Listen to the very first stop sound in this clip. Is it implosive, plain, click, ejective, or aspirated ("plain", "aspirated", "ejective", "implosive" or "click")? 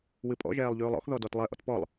ejective